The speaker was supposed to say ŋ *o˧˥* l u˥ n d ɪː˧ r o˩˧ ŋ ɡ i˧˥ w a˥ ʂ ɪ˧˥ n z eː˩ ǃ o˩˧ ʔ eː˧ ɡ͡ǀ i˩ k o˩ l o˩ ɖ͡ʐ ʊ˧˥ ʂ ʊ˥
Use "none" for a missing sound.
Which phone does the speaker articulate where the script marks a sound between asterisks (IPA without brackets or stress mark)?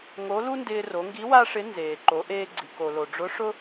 o˧˥